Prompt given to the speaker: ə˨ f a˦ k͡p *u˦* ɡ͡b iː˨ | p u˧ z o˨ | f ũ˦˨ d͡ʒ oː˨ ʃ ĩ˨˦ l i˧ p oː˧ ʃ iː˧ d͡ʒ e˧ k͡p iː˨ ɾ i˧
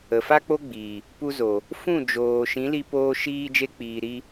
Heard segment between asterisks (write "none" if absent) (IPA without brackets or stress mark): o˦